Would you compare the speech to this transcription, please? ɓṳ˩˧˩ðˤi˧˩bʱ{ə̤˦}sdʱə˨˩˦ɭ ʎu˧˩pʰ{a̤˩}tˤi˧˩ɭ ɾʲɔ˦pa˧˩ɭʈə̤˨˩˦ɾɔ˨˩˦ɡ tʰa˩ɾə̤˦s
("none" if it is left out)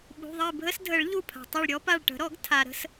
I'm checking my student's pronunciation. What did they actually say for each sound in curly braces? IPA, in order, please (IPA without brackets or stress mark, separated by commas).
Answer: ə˦, a̤˩